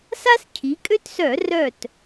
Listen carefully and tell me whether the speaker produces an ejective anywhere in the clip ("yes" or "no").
yes